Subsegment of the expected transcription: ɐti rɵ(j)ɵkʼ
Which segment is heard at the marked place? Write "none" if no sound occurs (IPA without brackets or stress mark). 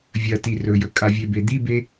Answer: j